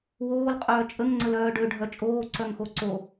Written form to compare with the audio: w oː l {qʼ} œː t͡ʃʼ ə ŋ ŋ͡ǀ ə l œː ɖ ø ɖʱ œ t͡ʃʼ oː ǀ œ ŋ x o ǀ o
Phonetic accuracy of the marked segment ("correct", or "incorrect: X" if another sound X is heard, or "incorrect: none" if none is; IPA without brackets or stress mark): correct